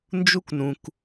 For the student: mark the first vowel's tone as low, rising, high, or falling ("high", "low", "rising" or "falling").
high